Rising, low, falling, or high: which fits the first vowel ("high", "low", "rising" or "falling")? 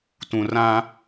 low